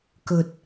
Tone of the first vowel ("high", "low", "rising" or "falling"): low